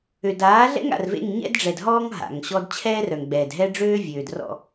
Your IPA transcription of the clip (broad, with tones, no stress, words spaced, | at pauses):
ø˨daː˨˦ɮɛ̰˦ŋ a̰˨r vḛ˦˨ŋɲɛ̰˦dɖ͡ʐɛ˨dɦɔː˦ŋ ɦa̰˨ŋɕɔ˦d t͡ɕʰɛː˦rœ˨ŋɡ͡bɛː˨d ɦɛ˦ɖ͡ʐøː˦ vʲøː˨drɔ̰˦˨